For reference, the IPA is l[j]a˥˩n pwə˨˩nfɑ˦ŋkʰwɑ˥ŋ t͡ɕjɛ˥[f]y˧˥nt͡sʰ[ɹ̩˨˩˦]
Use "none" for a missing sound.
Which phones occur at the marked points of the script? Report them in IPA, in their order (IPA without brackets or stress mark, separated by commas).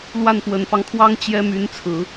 w, m, ɹ̩˨˩˦